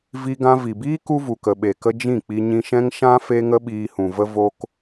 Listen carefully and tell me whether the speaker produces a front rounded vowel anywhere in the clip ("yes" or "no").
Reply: no